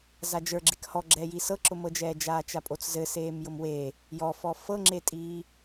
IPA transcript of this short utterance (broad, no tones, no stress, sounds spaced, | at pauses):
z a d͡ʒ ə˞ ɡ͡ǁ e k h ɔ ɡ͡ǁ ɛː j i s ɤ ǁ ʊ m ɤ d͡ʒ ɛː d͡ʒ aː t͡ʃ a pʼ o t͡s z ɘ s eː m j ʊ m w e | j ɔ f ɔ f ɤ ŋ͡ǁ e tʼ iː